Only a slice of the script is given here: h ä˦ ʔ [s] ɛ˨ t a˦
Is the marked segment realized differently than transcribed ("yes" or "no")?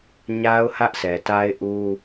no